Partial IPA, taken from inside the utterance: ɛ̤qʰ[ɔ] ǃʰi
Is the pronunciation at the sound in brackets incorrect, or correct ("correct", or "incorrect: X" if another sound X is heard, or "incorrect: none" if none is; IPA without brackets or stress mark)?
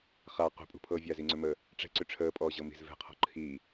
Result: incorrect: ɔ̤